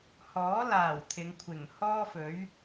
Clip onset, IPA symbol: h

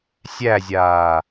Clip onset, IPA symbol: sʲ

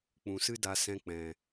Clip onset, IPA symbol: k͡p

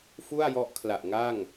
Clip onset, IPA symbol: f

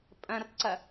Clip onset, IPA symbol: pʼ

